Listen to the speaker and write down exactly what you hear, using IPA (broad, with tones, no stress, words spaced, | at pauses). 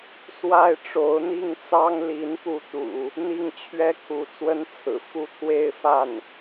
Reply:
swa˥ɪ̯ʈ͡ʂo˧˥ʊ̯n̪i˥˩ŋ t͡sɑ˥ŋli˧˥npu˧˥t̪ṵ˨˩˦ | n̪i˥˩ŋt͡ɕʰɥɛ˥kʰu˧˥ t͡swə˥nt͡sʰɹ̩˨˩ fu˥˧t̪ʰwe˥˧ɪ̯fa˥˩n